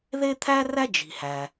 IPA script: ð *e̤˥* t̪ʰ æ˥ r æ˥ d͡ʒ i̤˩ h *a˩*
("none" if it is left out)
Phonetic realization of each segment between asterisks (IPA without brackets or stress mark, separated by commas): e˥, æ˩